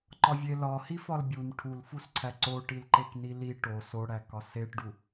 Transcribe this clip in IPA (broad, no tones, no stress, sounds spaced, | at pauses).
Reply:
ǃ ɒ vʲ e l ɒ h i f ɒ l bʲ u n ʈʰ u l f u s ǀʰ æ ǀ o ʈ i l ǃ e k n i l i ʈ o s o ɽ æ k ɒ s e ʈ ɖ u